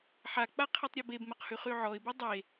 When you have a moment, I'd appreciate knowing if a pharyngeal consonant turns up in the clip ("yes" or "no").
yes